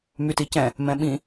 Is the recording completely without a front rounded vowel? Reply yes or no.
no